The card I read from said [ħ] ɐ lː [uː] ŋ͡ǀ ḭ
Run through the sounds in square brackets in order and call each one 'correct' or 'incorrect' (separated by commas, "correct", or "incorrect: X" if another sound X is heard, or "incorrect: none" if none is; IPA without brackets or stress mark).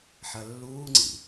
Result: correct, correct